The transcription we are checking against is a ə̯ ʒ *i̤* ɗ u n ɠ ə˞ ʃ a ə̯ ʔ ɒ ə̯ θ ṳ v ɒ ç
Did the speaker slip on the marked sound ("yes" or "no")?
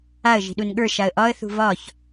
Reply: no